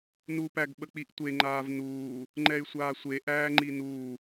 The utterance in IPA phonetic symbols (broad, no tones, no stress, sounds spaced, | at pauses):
n u p æ ɡ ɓ ə k͡p i ʔ tʷ e ŋ͡ǃ aː v n uː | ŋ͡ǃ ɛ y̯ sʷ aː sʷ e ʔ æː ŋ͡ǃ i n uː